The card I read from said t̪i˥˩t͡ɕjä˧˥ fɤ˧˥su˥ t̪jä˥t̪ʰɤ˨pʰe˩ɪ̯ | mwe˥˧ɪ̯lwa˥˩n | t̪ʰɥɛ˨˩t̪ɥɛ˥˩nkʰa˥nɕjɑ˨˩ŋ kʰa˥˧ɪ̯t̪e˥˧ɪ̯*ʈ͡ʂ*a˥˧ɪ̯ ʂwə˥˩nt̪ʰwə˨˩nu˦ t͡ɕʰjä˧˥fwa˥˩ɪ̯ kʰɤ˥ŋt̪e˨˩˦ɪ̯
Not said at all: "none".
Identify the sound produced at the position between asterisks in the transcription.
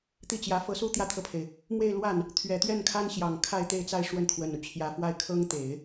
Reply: t͡s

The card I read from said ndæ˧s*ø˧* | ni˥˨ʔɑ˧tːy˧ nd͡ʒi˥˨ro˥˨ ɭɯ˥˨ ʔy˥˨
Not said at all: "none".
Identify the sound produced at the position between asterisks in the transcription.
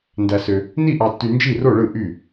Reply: ø˧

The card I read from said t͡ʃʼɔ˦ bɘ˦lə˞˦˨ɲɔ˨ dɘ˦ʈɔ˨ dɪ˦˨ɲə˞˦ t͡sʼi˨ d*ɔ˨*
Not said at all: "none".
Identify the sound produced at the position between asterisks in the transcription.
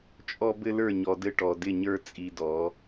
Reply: ɔ˨˦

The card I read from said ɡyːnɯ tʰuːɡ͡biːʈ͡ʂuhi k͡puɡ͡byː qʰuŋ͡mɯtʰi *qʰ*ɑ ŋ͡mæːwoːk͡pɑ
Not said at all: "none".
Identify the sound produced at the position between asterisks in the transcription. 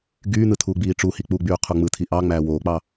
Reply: ʔ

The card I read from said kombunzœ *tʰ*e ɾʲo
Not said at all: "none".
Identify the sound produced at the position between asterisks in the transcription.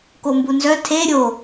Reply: tʰ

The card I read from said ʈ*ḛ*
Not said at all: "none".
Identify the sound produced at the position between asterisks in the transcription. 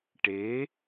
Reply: e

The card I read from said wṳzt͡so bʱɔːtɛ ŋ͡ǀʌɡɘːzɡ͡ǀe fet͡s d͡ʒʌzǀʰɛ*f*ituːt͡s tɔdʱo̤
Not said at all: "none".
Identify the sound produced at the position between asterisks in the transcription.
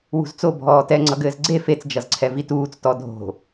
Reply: v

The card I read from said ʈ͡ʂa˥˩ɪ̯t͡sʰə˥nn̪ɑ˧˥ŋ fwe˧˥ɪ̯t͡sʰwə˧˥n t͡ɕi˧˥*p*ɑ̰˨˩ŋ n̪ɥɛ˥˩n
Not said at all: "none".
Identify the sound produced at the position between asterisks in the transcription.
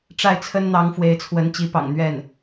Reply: p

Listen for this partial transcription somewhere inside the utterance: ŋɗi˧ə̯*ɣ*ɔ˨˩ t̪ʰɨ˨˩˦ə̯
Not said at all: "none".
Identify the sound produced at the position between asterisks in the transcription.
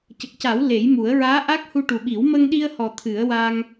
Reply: h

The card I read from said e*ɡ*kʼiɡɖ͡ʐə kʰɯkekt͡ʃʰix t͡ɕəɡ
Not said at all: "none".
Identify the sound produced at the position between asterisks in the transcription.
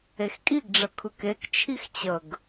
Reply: x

